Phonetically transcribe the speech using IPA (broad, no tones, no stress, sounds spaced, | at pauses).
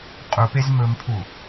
qʼ u p e z m ɵ m pʰ u